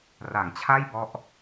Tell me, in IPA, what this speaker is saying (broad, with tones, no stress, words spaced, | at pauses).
ra˨˩ŋt͡ɕʰa˥˩jbɔ˦˥ʔ